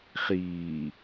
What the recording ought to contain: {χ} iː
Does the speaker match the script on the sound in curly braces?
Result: yes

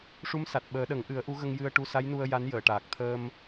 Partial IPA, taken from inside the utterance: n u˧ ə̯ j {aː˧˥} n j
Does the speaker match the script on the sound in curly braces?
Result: no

